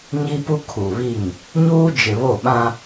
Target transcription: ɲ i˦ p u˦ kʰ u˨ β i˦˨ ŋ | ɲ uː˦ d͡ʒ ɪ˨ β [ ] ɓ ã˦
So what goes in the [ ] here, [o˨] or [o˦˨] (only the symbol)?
o˦˨